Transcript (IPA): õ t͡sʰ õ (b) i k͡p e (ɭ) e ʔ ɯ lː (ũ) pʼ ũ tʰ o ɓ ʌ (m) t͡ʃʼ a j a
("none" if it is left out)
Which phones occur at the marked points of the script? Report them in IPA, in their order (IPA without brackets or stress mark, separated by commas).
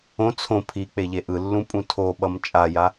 pʰ, ʎ, ũ, m